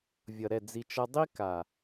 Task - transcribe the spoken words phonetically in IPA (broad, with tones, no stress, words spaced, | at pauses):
vʲʌ˨ɾɛ˦˨ d͡zi˨t͡ʃʌ˧ dˤi˦ka˨